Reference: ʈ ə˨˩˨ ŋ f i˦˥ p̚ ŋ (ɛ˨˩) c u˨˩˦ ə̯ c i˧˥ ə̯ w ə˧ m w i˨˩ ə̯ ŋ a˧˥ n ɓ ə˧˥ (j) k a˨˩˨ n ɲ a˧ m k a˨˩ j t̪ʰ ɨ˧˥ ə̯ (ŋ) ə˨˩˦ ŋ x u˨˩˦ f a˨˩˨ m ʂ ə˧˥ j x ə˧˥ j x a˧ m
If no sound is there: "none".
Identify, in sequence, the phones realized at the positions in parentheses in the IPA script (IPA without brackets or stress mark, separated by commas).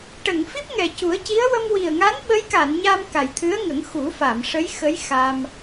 ɛ˨˩, j, ŋ